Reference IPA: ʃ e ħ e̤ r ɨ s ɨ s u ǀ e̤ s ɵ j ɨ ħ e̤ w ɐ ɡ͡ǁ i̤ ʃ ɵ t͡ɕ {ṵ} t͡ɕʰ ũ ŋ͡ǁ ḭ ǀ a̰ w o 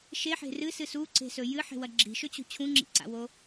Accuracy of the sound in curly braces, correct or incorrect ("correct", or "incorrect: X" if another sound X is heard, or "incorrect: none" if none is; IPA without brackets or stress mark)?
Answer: incorrect: ṳ